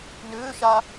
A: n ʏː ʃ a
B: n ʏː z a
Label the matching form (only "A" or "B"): A